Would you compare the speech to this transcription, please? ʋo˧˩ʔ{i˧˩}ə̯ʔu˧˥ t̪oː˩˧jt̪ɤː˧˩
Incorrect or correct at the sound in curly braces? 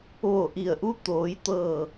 correct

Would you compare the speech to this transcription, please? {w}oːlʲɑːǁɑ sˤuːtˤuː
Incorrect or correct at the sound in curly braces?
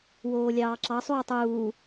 correct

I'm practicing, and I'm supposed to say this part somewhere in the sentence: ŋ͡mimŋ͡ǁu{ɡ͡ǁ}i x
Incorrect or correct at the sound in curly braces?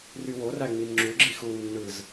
correct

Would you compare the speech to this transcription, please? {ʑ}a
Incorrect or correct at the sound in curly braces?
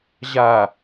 correct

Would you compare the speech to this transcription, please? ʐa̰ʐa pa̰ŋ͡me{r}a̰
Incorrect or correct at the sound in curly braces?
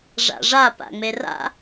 correct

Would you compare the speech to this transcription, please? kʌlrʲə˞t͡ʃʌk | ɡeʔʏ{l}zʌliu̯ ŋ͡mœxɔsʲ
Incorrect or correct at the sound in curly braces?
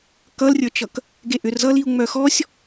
incorrect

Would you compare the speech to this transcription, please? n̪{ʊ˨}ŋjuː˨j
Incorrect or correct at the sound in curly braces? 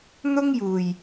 incorrect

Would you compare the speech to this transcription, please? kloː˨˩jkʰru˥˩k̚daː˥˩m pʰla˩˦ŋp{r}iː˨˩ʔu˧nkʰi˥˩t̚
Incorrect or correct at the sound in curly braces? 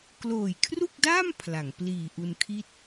incorrect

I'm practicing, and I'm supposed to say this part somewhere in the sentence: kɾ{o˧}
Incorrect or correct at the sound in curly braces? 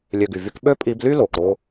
incorrect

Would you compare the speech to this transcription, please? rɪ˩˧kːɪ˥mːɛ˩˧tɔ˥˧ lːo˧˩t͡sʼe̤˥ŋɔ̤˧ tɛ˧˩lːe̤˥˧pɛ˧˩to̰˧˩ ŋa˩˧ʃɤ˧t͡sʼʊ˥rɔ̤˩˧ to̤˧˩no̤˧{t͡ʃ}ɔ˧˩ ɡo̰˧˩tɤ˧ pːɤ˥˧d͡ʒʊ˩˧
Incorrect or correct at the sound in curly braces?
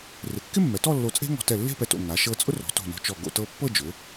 correct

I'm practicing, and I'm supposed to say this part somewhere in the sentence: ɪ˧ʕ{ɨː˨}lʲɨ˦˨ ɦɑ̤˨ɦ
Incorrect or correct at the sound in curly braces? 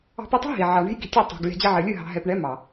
incorrect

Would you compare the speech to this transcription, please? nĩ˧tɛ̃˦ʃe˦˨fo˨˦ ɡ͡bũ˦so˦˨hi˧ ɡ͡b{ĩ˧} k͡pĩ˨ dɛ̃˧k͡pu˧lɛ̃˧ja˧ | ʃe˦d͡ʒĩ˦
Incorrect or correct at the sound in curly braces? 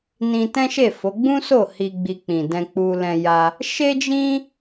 incorrect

